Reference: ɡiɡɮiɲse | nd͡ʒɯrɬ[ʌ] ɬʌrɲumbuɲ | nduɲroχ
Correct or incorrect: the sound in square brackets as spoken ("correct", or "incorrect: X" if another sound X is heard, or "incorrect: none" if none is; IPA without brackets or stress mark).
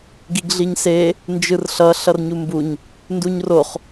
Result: correct